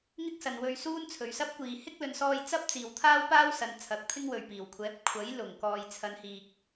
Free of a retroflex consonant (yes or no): yes